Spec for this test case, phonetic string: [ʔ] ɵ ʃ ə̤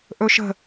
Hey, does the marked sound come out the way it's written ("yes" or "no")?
yes